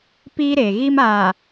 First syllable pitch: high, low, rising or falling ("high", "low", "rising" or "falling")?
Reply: high